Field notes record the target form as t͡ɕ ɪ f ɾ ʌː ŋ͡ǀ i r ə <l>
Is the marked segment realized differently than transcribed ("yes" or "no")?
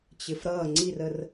yes